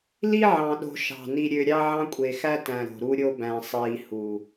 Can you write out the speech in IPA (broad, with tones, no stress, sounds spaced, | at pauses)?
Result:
l i˦ ʕ ɑ̃˨ ɗ o̤˨ ʃ ɑ̤˨ n i˨ ɾʲ ø˨ ɾʲ ɑ˦ ʕ ɑ̃˦ kʷʼ e˨ x æ˦ t æ̃˨ ɾ o̤˨ ɾ u˦ ɾʲ o˦ b æ̃˨ sˤ iː˨ h u˨